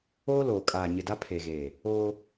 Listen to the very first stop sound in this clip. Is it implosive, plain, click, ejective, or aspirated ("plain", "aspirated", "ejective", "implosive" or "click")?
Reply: ejective